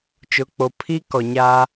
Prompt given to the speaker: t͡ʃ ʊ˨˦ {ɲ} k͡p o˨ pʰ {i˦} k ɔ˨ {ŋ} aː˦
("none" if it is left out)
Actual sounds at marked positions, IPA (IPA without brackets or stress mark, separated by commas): none, i˦, ɲ